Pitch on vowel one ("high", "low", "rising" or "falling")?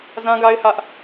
high